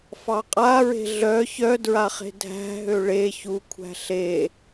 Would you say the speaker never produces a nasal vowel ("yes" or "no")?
yes